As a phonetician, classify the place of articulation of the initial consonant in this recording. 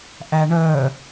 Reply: glottal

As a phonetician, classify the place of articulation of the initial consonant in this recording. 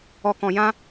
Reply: velar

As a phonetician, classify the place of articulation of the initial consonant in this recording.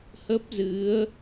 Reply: glottal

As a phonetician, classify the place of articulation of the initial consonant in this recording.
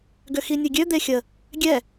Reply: velar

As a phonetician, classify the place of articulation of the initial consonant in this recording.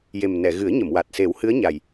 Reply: palatal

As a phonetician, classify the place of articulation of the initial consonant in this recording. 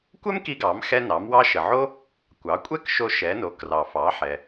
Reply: velar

